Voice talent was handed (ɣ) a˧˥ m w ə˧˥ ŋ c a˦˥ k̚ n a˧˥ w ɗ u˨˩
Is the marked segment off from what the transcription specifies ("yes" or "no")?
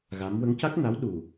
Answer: no